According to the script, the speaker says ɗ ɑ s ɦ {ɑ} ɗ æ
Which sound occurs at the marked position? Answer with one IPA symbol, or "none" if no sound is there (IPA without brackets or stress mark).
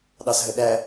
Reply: ə